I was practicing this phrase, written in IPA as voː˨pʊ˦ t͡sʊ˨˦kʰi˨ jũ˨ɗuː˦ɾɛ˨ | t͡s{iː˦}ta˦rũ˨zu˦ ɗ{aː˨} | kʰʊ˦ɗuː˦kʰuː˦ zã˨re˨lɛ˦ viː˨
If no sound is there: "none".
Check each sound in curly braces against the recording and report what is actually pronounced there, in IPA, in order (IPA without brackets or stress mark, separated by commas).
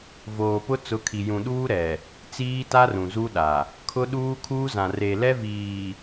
iː˦, a˨